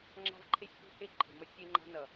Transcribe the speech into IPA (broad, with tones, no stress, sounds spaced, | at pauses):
ŋ͡ǁ a̤˦ v ǃʰ e˦ sʲ p i̤˦ h e˦ ǃʰ e̤˨ m ʌ˦ sʲ e˦ ŋ͡ǃ a̤˦ n ʌ˨